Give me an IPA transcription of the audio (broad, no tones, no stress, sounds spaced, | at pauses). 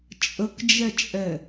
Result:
t͡ʃʼ ə k d͡ʒ ɛ t͡ʃʼ ɛ